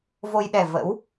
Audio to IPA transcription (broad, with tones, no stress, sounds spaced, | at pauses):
v o˧ j ɗ ɛ˨˩ v ə̰˧˥ w